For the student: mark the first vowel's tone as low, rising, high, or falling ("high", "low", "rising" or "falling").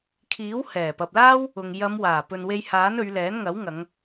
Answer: rising